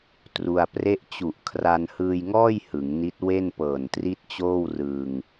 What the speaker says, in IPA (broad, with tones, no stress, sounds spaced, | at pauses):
t r u˧ a̯ p r e˥˩ ʔ t͡ɕ u˨˩ ʔ kʰ r a˧ n h ɯː˧ j ŋ ɔː˥˩ j h ɯ˩˦ ŋ n i˦˥ t̚ w e˥˩ n p ɤː˨˩ n t r i˥˩ t̚ t͡ɕ oː˥˩ w r ɯː˧ ŋ